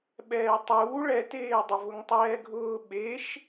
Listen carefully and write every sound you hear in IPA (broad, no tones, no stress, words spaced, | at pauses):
ɓɛːtˤuː ɭɛteːdˤɪvʊŋ tˤɛːɡʱʊː ɓeʃ